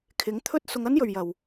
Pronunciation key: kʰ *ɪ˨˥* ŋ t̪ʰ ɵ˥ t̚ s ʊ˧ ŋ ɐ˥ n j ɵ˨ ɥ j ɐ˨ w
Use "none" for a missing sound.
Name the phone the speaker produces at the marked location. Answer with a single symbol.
ɪ˨˥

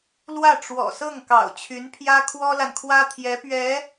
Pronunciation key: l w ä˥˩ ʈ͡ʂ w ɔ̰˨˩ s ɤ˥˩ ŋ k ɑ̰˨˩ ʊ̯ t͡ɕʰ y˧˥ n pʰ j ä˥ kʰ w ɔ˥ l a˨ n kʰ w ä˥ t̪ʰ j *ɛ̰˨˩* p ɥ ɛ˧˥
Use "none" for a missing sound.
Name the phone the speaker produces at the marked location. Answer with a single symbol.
ɛ˧˥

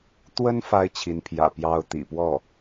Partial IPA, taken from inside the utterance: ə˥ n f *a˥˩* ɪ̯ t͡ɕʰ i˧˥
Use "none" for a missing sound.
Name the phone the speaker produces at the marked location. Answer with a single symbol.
a˥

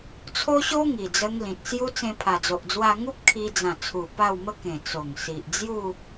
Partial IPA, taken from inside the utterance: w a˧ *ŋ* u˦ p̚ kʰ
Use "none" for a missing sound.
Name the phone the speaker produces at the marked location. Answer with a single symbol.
ŋ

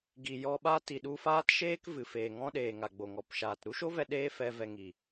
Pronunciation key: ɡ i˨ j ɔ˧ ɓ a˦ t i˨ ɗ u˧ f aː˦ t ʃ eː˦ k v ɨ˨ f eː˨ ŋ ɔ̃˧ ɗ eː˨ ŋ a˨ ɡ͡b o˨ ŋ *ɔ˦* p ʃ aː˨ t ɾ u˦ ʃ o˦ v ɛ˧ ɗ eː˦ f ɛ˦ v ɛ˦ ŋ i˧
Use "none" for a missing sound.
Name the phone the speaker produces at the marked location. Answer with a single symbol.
ɔ˨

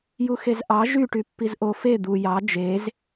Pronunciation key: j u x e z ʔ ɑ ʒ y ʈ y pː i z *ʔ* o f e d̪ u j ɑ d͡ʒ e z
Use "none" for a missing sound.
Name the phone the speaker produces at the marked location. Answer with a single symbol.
ʔ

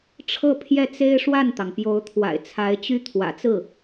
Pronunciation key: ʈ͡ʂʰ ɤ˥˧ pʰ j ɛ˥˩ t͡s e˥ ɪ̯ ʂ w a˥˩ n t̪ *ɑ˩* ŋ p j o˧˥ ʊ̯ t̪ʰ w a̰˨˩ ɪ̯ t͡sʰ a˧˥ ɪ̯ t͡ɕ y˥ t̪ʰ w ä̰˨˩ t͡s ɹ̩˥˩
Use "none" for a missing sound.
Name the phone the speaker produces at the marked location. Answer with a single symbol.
ɑ˩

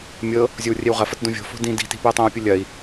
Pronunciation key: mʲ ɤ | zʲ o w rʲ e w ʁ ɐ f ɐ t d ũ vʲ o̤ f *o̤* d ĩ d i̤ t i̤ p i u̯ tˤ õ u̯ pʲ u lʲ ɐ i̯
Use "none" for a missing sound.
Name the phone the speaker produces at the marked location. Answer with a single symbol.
o̤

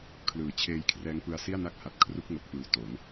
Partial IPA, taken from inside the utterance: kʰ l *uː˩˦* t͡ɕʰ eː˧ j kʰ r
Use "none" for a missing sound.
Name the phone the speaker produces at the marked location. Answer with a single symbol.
ɯː˩˦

